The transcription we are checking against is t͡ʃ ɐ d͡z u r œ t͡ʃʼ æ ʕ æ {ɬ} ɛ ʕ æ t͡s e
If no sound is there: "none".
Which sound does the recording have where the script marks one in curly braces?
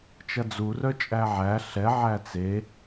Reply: ɬ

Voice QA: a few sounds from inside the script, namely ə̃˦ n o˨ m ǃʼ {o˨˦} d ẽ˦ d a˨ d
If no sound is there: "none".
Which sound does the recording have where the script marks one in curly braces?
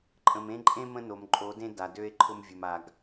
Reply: o˨˦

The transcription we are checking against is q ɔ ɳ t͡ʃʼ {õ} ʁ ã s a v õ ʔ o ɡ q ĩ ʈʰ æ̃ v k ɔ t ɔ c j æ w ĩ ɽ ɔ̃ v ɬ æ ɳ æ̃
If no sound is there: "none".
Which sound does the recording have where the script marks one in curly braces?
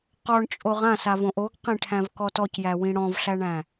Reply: o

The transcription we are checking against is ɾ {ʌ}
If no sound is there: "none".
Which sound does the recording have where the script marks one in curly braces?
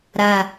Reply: a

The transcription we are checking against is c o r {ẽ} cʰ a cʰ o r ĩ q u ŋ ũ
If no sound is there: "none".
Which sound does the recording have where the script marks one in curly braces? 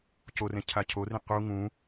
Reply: ẽ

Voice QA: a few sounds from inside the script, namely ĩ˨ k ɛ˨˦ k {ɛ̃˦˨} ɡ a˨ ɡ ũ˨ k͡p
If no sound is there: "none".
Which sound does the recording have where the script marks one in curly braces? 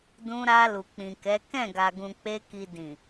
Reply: ɛ̃˦˨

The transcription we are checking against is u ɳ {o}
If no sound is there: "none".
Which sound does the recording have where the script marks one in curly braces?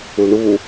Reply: u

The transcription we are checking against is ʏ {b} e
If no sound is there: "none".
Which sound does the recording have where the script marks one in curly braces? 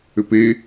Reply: p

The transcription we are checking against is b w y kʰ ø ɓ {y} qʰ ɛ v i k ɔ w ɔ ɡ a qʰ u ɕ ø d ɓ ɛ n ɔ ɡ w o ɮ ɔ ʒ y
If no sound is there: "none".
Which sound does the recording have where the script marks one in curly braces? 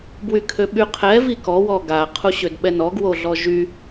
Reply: y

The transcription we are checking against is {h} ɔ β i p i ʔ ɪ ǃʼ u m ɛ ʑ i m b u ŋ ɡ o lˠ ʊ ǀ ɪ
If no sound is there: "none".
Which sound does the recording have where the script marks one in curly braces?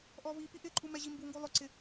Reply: ʔ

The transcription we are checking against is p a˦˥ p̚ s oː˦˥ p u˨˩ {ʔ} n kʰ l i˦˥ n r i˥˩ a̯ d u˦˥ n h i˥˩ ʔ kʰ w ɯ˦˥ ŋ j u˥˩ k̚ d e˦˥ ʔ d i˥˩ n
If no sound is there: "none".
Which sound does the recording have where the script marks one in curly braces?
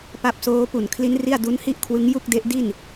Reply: none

